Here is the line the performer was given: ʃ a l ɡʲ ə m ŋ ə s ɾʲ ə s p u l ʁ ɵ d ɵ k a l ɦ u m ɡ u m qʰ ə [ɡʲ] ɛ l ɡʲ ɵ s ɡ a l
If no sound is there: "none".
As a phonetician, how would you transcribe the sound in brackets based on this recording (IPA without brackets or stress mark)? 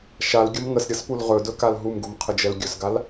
d͡ʒ